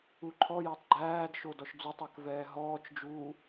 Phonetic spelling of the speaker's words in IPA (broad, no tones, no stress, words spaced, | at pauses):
uǃʰɔjɔtˤ ɡ͡ǃæːd ʃodɔʃd͡zutˤæk vɛːɦɔːt͡ʃd͡ʒuː